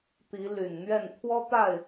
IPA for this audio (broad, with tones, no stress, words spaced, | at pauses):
t̪i˨˦ ly˨˩nn̪ɥɛ˥˨n t̪ʰwɔ˦t̪a˥˨ɪ̯